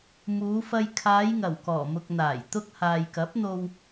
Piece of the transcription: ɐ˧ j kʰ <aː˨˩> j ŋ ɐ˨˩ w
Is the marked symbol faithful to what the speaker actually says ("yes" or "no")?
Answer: no